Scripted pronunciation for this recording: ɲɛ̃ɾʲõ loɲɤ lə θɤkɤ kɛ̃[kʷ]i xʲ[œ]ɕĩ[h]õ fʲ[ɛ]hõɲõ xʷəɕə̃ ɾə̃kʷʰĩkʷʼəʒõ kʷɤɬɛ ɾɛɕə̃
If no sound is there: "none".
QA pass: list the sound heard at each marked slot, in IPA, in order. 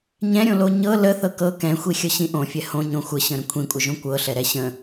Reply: xʷ, ə, ʔ, ɛ

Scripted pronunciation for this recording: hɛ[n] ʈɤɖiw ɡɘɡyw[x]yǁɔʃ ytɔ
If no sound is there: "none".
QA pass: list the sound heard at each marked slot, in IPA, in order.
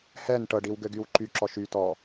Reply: n, ǃ

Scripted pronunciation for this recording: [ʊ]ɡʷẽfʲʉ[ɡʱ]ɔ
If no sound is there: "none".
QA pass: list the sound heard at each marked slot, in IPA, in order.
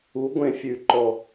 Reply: u, ǃ

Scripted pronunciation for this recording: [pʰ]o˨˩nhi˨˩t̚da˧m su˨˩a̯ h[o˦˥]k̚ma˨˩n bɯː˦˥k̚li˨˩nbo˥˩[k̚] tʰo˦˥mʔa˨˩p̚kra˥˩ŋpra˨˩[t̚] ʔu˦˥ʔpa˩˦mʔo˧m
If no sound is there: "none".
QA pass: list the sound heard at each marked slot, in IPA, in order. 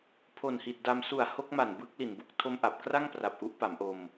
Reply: pʰ, o˦˥, k̚, p̚

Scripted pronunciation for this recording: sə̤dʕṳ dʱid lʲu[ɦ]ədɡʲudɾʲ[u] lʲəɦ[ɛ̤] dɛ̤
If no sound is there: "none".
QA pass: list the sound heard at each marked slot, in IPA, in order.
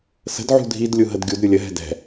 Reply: ɦ, u, ɛ̤

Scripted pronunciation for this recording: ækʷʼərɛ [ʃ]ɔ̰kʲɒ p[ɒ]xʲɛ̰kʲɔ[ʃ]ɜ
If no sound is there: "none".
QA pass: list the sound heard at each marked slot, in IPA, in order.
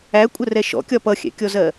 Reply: ʃ, ʌ, z

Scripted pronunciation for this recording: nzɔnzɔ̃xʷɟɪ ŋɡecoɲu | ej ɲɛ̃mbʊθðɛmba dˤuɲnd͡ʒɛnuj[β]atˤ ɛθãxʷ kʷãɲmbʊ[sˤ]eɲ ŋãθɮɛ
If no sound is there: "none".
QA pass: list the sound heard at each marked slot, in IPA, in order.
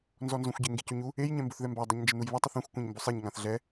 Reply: β, sˤ

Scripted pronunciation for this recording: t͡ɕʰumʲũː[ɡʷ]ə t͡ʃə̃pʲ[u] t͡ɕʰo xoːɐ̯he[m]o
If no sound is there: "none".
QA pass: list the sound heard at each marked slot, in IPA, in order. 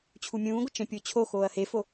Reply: ɡʷ, o, f

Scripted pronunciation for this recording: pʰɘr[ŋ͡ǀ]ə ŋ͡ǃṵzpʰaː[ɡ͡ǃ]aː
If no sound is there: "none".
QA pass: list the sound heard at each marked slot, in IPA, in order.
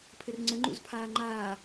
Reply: ŋ͡ǀ, ŋ͡ǃ

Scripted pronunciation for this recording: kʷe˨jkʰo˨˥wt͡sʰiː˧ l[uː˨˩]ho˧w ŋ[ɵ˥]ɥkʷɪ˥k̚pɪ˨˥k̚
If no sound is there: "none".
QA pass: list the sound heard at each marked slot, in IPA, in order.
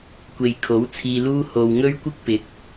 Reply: uː˥, ɵ˥

